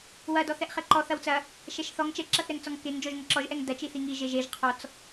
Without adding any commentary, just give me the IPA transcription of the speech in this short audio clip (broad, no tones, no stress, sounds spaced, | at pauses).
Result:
w ɐ d ɔ θ ɛ ʔ χ ɛ ǃ ɔ θ ɐ w t͡s ɐ | ʃ ɛ ʃ θ ɔ ŋ t͡ʃ ɛ ǁ ɐ θ ɾ ɛ ŋ t͡s ɔ ŋ k e ŋ d͡ʒ ɔ ʒ ŋ ɐ ǁ ɔ ʒ ʔ ɛ ŋ d ɐ t͡ʃ i θ i ŋ i ʒ e ʒ e ʒ qʰ ɔ t͡s